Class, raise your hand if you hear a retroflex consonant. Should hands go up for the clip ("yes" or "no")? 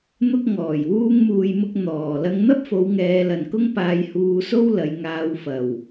no